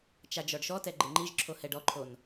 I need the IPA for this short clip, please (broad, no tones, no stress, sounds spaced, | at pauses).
t͡ʃ a d͡ʒ ɔ ɖ ʃ ɔ t ɛ ɡ͡ǃ ɪ ŋ͡ǃ i ʒ ǁʰ o h ɛ ɖ ɔ ǃʰ o n